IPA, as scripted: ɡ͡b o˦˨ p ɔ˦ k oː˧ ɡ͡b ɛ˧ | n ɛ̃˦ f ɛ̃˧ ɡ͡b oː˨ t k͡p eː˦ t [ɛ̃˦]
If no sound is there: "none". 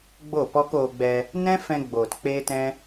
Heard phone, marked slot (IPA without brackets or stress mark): ɛ̃˦